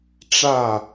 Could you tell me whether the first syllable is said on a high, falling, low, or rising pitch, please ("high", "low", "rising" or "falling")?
falling